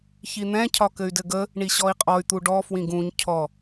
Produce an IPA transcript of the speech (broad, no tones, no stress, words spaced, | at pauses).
çin̪ɛ̃ cʰɒkɘy̯dɘɡə | ɳiɕɔi̯qʼɔy̯ t̪uɖɔ fwĩɡũɲ cʰɔ